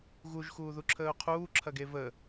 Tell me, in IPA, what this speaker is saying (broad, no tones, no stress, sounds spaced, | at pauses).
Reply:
ɣ u ʒ x uː ð u ǁʰ əː ʊ̯ qʰ uː ǁʰ ɐ ɡ e v ə